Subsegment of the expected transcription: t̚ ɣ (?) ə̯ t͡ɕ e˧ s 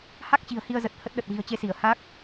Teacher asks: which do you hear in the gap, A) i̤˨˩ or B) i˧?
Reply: A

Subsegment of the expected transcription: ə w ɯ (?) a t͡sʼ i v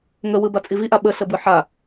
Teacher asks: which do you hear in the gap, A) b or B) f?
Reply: A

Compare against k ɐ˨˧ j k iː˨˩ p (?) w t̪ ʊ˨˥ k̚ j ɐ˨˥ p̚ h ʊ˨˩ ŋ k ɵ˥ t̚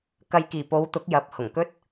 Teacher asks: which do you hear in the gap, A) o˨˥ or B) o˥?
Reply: A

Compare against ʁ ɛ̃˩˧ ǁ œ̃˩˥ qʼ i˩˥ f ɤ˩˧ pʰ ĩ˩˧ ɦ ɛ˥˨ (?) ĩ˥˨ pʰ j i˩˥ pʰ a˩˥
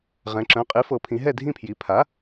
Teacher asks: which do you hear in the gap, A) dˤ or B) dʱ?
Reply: B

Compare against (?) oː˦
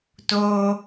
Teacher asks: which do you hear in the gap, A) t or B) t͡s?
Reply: A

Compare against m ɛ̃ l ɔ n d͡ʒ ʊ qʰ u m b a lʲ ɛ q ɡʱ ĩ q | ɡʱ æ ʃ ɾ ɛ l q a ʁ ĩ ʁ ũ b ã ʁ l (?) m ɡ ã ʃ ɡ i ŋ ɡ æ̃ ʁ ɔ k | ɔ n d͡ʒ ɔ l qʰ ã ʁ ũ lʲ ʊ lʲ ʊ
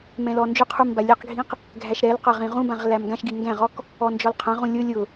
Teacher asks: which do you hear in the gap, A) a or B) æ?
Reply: B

